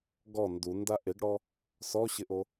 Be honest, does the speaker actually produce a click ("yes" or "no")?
no